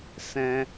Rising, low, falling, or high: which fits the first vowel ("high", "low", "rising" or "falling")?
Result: high